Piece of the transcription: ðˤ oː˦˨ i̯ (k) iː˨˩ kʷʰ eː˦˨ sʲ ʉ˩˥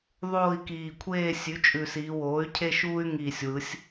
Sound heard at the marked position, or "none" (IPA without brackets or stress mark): k